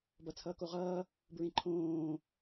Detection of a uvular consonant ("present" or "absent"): present